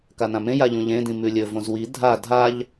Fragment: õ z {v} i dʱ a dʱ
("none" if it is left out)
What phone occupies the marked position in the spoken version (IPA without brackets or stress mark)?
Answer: w